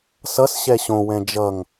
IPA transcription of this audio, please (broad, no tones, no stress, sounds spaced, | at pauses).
s ʌ s ɕ ɛ ɕ õ w ɛ̃ d͡ʒ ʌ ŋ